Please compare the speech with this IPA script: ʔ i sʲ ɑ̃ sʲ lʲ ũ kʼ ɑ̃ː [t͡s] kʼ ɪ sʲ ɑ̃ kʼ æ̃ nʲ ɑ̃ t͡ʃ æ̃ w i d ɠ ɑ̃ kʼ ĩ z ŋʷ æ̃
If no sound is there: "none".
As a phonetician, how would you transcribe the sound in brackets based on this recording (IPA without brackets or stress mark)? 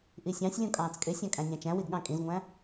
t͡s